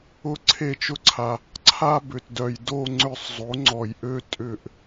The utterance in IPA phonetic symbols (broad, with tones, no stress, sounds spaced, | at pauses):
ʊ˦˨ ǀʰ e˦˨ t͡ʃ ʊ˥ ǀʰ a˨ | ǀʰ a˥ b ʏ˨ t d œ˨ j d o˦˨ ŋ͡ǀ ʏ˦˨ sˤ zˤ o˨˥ ŋ͡ǀ ɔ˨ j ʔ ø˥ tʼ ʏ˦˨ ʔ